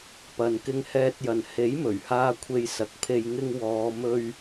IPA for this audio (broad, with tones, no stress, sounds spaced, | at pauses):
p ɐ˨ n k ɪ˧ ŋ h ɛː˧ t̚ j ɐ˨ n h e˨˥ j m ɵ˨˩ ɥ h aː˧ kʷʰ e˧ j s ɐ˨˥ k̚ pʰ e˧ j ŋ ɪ˧ ŋ w ɔː˨˧ m ɵ˧ ɥ